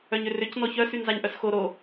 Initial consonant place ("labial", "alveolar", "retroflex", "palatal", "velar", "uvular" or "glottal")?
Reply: palatal